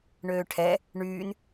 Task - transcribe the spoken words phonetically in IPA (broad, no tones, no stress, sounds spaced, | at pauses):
ɳ øː ʈʰ ɛ | ɳ yː n